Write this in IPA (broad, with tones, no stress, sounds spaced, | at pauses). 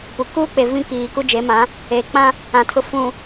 p u˨ k uː˦ k͡p e˨ v ĩ˦ k iː˨ k u˦ d͡ʒ e˨˦ m ã˨˦ | eː˨ k͡p ã˦ | ã˨ tʰ ʊ˨ f ũ˨